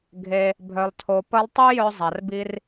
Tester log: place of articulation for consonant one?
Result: velar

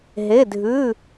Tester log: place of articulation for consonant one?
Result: glottal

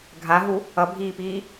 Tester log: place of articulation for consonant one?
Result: velar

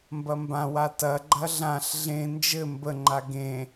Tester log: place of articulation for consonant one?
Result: labial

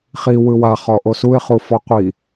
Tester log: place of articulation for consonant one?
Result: uvular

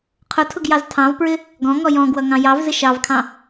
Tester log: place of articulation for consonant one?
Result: uvular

